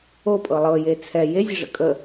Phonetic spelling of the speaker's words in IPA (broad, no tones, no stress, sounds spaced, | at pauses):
o pʼ ɤ lˠ ɤ j e t͡sʰ ɛ j e zʲ ɐ ʐ ə̰ kʼ ə